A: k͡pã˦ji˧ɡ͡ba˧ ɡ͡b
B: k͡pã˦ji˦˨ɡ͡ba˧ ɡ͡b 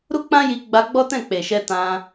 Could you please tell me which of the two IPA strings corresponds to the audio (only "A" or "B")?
A